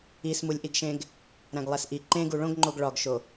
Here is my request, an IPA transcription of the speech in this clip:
ismulʲʔiɡʃẽɡ | ɾæ̃ɡlˠæsʔi ǃẽɡu ɭõɡŋ͡ǃoɡ ɭɒɡʃo

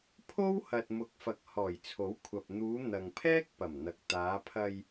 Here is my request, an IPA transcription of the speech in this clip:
pʰo˥whɐ˨t̚ mʊ˨˥k̚fɐ˨k̚ hɔː˨˩jt͡sʰo˨˥wkʷʰɐ˨p̚ n̪uː˨˧ n̪ɐ˨ŋpʰɛː˥k̚ pɐ˨˩mn̪ɐ˨k̚ t̪aː˨˧pʰɐ˧j

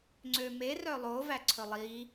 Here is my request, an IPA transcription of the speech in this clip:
ŋ͡ǀømerœ lˠovæ ǀʰɵlˠi

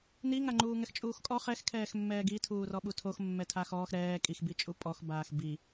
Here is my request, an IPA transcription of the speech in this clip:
niŋaŋ͡ǃuːŋɛx t͡ʃʼuːxkʼɔ χɛxkʰɛːx mːɛːɡi tʰuːrɔɓutʰox mːɛtʰaxɔːx ɾɛː kʼixbi t͡ʃʼupʼɔx baːxbi

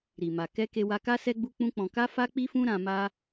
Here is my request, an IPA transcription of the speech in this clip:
ɾi˨ma˨ kɛ˧ ke˧wa˧ka˦sɛ˦ ɡ͡bu˦k͡pũ˦k͡pɔ̃˧ ka˦fa˦k͡pi˦fũ˦ ɾã˧ma˦

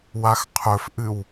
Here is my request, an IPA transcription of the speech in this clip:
waxqʰɵfʔɨw

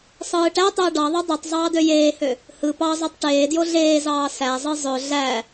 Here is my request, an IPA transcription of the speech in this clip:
sˤɯːʈætˤøə̯ ɖɑðˤø dˤøtˤ zˤɑːdøjeːhø | hɯ pɑzˤøtˤ ʈeːdjo ɮeːzɑː sæzˤɯ zˤø ɮæ

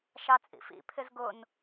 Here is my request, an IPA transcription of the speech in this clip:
ʃɑt͡sʼḭfḭ pʰɪzɡʊn

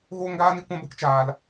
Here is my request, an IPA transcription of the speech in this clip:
ɣoː˦ŋɡaː˦ni˦kʷã˦ bə˦kt͡ʃaː˧l

